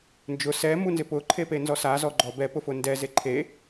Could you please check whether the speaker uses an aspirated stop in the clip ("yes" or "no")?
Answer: yes